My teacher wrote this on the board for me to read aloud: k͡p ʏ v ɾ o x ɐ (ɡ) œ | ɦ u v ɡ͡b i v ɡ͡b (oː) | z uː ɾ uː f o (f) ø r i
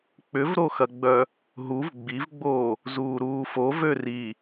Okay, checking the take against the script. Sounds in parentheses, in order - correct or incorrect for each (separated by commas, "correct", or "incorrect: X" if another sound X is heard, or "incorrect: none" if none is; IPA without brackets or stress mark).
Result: incorrect: ɡ͡b, correct, incorrect: v